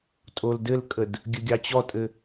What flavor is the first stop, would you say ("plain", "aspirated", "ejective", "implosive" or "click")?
ejective